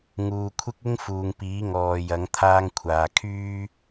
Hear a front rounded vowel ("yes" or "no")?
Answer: yes